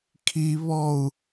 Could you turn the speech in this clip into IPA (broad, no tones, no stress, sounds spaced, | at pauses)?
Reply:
kʰ i β ɔ u̯